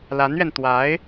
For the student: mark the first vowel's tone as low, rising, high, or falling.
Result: rising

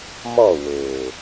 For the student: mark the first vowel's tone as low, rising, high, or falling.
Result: falling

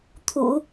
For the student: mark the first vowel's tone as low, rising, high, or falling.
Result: low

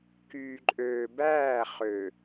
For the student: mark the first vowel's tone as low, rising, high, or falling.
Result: low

